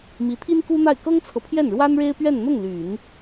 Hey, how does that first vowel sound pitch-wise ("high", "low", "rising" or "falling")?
rising